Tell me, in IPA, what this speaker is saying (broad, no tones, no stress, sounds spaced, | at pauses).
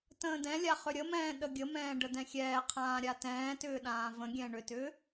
t ə̃ː d ɛ̃ lʲ a χ ʏ ɾʲ ə m ɛ̃ː ɗ ə ɡʲ ə m ɛ̃ː ɖ ə d ɛ̃ xʲ ɛː qʰ ãː ɾʲ a t ɛ̃ː t ʏː ɗ ãː v ə̃ ɡʲ ɛ̃ ɳ ʏ t ʏː